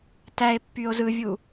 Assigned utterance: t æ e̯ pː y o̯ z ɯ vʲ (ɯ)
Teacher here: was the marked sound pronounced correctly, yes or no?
no